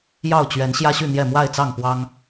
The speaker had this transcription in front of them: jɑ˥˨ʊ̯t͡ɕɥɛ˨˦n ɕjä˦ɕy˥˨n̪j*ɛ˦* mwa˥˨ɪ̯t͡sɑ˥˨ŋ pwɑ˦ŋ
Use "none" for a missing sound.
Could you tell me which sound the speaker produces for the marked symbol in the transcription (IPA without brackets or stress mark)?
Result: ɛ˥˨